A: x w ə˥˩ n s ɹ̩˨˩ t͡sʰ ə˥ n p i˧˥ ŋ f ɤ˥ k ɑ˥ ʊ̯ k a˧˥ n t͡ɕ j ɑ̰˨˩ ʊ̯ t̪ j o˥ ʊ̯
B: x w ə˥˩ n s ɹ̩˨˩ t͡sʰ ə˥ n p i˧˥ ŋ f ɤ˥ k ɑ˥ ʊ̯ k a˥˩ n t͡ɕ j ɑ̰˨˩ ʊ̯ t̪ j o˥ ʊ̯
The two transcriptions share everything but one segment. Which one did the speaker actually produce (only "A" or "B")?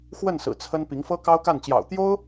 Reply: B